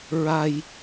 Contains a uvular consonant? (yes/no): no